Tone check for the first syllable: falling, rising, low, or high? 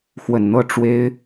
low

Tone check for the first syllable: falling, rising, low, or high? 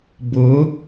rising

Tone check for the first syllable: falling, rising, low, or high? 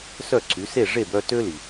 falling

